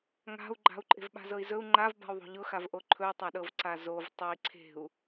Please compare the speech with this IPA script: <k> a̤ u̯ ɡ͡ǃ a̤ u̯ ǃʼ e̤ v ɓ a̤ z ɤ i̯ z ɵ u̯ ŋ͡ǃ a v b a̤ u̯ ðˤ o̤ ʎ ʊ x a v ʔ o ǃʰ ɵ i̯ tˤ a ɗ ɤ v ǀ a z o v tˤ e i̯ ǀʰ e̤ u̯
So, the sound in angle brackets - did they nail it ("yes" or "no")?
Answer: no